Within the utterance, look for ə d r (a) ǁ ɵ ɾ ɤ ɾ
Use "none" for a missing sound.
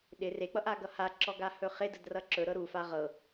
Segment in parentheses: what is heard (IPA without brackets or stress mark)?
ʌ